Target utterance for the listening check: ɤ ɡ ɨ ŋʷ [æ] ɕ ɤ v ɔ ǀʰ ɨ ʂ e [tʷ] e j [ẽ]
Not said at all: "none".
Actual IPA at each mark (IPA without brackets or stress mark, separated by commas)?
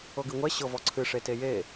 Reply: ɛ, t, e